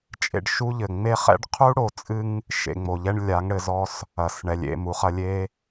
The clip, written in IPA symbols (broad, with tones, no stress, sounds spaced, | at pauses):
t͡ʃʼ ḛ˧ ɖ ʃ u˦ ʎ ɘ˨ ŋ͡m e˦ χ ɛ̰˦ ɖ qʰ u˦ ɽ o˨ t͡sʼ ɨ˧ ŋ | ʃ ḛ˨ ŋ͡m o˨ ʎ ɛ˧ ɳ lʲ a˨˦ ŋ ɽ ɘ˨ z ɔ˧ s | ɐ˨ s ɳ ɛ˨ lʲ ḛ˨ m u˨ χ ɐ˧ lʲ e˦